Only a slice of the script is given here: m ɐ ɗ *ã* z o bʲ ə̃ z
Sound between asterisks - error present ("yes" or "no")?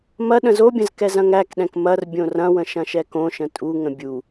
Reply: yes